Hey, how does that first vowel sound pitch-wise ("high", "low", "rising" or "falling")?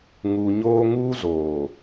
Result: low